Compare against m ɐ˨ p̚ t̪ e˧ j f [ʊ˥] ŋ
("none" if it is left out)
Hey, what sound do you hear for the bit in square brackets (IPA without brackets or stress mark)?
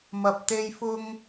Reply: ʊ˧